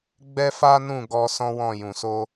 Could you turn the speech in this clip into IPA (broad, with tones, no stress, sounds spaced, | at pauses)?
ɡ͡b ɛ˦ f a˦ n ũ˦˨ ɡ ɔ˧ s ɔ̃˦ w ɔ̃˦˨ j ũ˨ s o˧